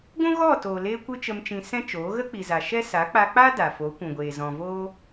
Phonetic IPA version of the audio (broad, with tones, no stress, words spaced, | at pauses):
ɡʷũ˦ɣɔ˦˨ toː˨leː˧ kʷɨ˦t͡ʃə˧mt͡ʃĩ˧ sɛ̃˦t͡ʃoː˨˦ ɣə˦k͡pi˨za˨ ʃɛ˦ sa˨˦k͡pa˧k͡pa˦ da˨fo˨˦kʷũ˨ɡʷeː˨ zɔ̃˨voː˦